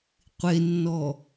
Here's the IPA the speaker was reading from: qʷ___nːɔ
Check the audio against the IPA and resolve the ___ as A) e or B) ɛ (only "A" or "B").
A